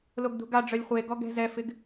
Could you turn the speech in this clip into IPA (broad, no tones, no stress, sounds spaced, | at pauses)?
l o ɡ d ṳ ɡ a ɖ͡ʐ œ lʲ χʷ e ɡ ɔ ɡ ɛ̤ z ɛ f ɪ ɡ